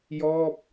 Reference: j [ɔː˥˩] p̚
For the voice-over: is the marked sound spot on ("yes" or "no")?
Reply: yes